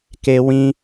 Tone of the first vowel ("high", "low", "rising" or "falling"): high